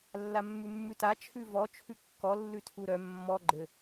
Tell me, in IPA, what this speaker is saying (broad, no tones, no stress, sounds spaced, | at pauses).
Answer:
lː a mː ʉ mː ʉ t a t͡ʃʰ ʉ v ɔ t͡ʃʰ ʉ kː ɔ lː ʉ tʰ u ɾ œ mː ɔ ɡ͡ǃ ɘ